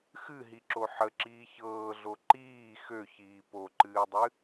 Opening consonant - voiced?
no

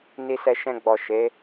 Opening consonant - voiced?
yes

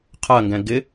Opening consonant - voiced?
no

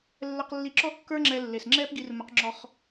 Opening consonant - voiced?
yes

